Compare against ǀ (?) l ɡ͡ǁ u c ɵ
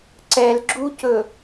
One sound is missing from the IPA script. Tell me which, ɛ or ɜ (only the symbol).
ɛ